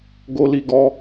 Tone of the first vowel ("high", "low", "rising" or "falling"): high